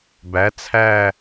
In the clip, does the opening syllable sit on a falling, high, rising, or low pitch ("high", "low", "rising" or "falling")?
rising